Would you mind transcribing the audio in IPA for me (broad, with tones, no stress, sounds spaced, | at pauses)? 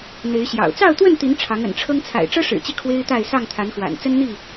n̪ e˨˦ ɪ̯ ɕ j ɑ̰˨˩ ʊ̯ t͡s ɑ˥˨ ʊ̯ t̪ w ə˥˨ n t̪ i˨˦ n ʈ͡ʂʰ ɑ˨˦ ŋ ə̰˨˩ n ʈ͡ʂʰ ɤ˦ ŋ t͡sʰ a̰˨˩ ɪ̯ ʈ͡ʂ ɤ˦ ʂ ɻ̩˨˩ t͡ɕ i˦ kʰ w e˦ ɪ̯ t̪ a˥˨ ɪ̯ s ɑ˥˨ ŋ t̪ʰ a˨˦ n x w a̰˨˩ n t͡s ə˦ n n̪ i˥˨